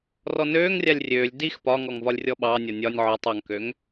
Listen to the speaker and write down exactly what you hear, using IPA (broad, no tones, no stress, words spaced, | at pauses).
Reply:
rɔnøːŋrʲalʲ rʲøːlʲ dix pɒŋɔŋ vɒlʲrʲɔɓɑnʲɒ nʲɒnʲ ʕɔtˤ ɒŋkøŋ